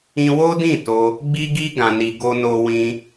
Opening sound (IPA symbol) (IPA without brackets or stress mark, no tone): ĩ